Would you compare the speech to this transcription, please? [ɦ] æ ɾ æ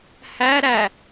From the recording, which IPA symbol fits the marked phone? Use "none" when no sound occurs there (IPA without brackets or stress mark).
h